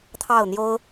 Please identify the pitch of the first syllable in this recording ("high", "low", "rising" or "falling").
falling